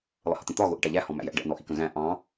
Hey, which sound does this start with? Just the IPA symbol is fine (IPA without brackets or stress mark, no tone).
lˠ